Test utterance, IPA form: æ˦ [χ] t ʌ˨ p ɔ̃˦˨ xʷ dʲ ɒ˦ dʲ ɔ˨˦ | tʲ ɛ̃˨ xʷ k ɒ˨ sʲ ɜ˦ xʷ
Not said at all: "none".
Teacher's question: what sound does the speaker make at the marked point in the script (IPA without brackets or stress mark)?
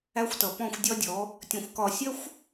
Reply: xʷ